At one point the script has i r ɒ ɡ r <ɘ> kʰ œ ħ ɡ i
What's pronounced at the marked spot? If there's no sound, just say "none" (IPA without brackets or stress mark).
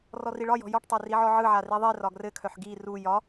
ɘ